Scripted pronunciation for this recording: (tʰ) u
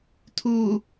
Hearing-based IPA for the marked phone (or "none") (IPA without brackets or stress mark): tʰ